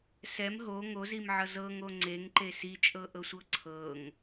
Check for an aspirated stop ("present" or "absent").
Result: present